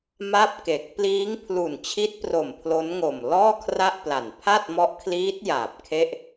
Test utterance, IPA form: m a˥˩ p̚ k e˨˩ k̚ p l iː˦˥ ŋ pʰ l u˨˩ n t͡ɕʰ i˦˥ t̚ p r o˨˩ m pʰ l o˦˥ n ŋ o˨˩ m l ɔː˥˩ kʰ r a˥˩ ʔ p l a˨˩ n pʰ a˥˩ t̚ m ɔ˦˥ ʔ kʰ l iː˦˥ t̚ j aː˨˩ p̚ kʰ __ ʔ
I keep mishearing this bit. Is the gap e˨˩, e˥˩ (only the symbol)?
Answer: e˥˩